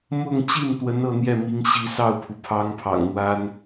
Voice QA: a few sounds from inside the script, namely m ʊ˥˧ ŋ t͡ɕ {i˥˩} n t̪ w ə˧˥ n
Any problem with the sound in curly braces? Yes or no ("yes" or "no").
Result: no